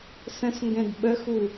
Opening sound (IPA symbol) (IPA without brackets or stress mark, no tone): s